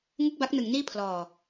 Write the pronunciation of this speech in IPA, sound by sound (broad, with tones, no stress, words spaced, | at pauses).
ŋɯ˥˩k̚ba˦˥k̚nɯ˩˦ŋ niː˥˩pʰlɔː˨˩